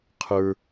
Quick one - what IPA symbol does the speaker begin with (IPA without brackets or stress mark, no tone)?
qʰ